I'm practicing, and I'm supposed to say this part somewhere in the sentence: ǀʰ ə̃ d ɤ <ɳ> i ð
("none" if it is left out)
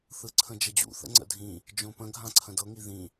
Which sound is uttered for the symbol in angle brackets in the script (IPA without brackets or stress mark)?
ŋ